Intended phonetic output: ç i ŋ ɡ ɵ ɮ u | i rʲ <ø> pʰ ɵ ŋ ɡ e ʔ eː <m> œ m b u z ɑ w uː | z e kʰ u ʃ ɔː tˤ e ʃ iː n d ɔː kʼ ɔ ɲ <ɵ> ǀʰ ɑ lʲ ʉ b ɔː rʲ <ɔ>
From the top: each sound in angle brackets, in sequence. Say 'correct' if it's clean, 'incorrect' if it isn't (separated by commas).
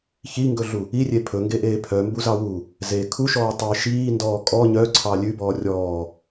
incorrect, incorrect, incorrect, incorrect